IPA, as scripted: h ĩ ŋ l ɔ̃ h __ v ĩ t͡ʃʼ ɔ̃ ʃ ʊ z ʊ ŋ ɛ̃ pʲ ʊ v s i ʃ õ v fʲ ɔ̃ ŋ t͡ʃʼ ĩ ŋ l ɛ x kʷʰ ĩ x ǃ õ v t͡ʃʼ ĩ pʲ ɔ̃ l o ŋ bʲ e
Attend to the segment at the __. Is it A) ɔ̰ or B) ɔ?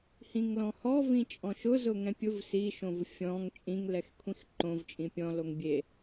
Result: B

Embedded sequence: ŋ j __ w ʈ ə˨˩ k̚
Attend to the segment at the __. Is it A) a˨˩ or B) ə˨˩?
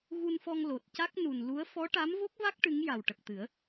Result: A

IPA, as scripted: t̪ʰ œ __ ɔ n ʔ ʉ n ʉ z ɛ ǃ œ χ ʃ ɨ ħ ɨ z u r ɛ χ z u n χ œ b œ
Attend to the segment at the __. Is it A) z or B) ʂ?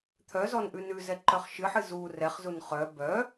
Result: A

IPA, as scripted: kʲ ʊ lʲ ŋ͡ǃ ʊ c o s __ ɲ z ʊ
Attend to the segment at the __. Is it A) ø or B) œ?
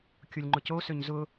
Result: A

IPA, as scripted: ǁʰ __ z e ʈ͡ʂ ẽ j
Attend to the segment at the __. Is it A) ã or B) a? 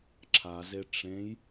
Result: B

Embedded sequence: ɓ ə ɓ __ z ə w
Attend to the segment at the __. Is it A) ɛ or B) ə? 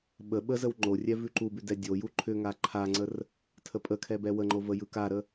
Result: B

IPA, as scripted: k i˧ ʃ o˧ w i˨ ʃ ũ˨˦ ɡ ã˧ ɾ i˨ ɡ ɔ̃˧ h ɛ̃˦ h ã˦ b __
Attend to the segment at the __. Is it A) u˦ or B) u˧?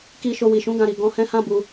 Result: B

